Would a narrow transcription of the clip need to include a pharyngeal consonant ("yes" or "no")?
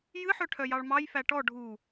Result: yes